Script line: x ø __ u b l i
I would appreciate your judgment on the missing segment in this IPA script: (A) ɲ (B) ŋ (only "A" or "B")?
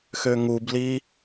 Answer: B